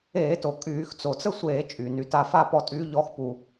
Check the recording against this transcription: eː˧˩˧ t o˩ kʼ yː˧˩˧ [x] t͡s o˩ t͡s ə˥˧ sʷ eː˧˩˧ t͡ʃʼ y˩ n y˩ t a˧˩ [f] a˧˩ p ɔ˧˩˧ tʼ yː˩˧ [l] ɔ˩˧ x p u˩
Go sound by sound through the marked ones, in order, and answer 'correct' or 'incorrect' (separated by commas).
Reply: correct, correct, incorrect